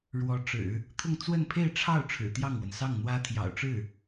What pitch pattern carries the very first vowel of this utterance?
rising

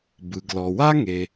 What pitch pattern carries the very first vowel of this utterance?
low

